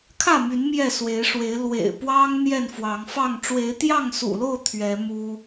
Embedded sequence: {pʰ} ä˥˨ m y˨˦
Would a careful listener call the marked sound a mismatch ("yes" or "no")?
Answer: yes